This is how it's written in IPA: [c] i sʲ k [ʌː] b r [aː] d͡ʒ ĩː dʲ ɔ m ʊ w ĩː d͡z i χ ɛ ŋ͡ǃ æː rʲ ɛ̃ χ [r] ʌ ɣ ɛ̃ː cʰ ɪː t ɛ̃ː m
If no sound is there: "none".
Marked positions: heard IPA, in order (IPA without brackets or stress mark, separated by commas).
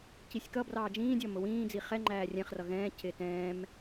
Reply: c, ʌ, ɑː, r